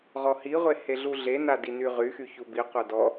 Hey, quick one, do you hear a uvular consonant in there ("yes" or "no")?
yes